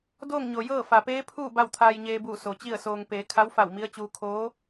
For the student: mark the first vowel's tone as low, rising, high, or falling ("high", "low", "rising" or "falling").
falling